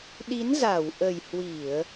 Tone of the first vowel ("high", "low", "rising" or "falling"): rising